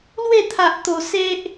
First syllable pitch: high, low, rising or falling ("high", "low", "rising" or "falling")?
falling